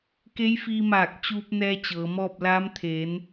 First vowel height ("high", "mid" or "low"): mid